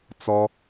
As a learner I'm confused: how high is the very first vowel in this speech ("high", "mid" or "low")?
mid